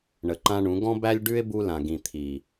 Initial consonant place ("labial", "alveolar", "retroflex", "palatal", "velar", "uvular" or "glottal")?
retroflex